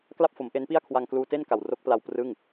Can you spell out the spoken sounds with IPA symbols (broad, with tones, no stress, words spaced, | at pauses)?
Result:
kla˥˩p̚fo˩˦mʔe˦˥n pi˥˩a̯kʰwa˧ŋkluː˧ te˥˩nka˨˩wro˦˥k̚pla˧w prɯ˥˩ŋ